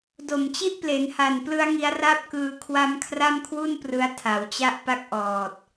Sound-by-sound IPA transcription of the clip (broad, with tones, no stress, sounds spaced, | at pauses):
d o˨˩ m t͡ɕ i˥˩ ʔ p l e˩˦ n h a˨˩ n p l ɯ˦˥ a̯ ŋ i˦˥ a̯ r a˥˩ p̚ k ɯː˧ kʰ w a˦˥ m kʰ r a˥˩ m kʰ w u˥˩ n p r ɯ˦˥ a̯ tʰ a˩˦ w t͡ɕ a˥˩ ʔ p a˥˩ k̚ ʔ ɔː˨˩ t̚